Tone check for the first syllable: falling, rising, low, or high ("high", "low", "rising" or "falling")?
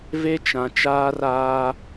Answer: high